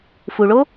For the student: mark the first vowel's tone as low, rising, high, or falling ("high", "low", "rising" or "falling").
low